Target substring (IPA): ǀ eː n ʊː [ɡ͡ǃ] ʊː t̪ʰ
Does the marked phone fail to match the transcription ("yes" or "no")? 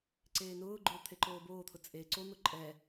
no